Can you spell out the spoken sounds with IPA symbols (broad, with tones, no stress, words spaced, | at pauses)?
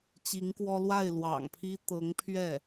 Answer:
t͡ɕi˧˥ŋkwɔ˥ lwa˥˩ɪ̯lwɑ̰˨˩ŋpʰi˥ t̪ɤ˧˥ŋpʰɥɛ˥˩